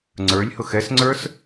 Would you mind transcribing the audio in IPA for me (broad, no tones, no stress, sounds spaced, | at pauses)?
ŋ͡ǀ ə˞ lʲ h ʊ x ɛ s ŋ͡ǀ ə˞ s